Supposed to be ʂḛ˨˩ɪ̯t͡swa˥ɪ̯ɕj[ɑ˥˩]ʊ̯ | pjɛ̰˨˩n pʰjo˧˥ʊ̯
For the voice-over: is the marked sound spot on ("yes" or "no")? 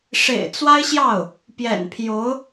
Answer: yes